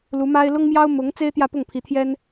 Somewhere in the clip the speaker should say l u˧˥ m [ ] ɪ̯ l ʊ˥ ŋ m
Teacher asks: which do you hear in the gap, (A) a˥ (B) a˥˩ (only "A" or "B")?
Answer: A